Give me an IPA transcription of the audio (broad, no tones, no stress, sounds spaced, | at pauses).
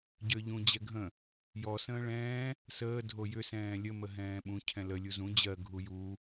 ɟ ə˞ ʎ ũ d͡ʑ ɛ ɡʱ ə̃ | j ɔ s ə̃ː ɭ ɛ̃ː | s əː dʱ o j ʏ s ɛ̃ː lʲ ə m ə ɦ ɛ̃ː ɓ ũ cʰ ɛ̃ l ə lʲ u z ũ d͡ʑ ɜ ɡʱ u j u